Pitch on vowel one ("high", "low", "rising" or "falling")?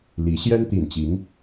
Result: rising